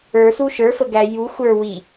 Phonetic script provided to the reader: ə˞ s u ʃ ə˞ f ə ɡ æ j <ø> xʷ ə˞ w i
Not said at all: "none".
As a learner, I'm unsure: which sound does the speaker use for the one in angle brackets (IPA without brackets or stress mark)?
u